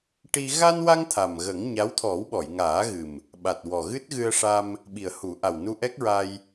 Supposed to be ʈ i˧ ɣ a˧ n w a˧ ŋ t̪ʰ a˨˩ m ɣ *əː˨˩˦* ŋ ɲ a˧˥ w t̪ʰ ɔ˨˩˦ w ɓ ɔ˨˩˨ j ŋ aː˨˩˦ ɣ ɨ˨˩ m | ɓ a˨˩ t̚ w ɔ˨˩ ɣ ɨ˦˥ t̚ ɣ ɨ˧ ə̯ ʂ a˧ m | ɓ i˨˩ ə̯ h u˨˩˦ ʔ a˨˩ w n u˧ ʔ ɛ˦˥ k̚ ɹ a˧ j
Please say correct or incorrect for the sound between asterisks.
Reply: incorrect: ə˨˩˦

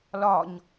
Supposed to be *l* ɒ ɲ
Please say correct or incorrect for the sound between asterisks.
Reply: correct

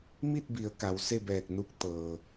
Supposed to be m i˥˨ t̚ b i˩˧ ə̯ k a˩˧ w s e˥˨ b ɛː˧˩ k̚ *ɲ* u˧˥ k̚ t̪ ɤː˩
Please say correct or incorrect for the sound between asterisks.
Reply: incorrect: n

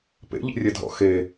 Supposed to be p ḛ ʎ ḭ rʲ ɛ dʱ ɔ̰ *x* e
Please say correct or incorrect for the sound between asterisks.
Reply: correct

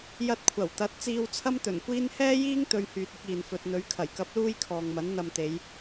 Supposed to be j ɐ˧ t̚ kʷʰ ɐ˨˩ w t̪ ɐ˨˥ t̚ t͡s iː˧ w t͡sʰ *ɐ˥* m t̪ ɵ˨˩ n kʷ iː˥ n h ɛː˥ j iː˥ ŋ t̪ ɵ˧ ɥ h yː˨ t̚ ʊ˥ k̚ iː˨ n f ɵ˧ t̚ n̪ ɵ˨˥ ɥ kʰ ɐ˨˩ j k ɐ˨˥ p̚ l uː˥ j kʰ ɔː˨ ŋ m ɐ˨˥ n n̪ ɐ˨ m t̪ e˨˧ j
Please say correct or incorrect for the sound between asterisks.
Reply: correct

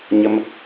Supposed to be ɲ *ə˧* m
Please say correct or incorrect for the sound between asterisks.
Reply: correct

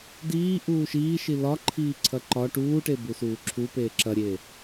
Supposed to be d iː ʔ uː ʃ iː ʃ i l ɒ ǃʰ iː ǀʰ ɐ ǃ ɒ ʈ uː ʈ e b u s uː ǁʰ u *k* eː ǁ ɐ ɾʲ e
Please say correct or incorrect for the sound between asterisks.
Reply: incorrect: p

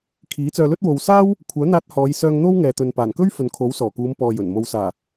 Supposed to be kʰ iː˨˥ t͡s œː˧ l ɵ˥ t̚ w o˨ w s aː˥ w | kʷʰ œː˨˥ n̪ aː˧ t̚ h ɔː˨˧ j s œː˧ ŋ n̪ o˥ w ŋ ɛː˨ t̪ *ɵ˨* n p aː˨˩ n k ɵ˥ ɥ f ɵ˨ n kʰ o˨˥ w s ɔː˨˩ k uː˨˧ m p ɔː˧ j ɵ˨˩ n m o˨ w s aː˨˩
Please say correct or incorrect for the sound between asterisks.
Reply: correct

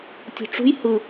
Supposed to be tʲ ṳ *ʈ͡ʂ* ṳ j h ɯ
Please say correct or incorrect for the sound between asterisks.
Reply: correct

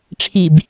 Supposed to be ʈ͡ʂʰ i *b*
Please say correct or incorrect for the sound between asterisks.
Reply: correct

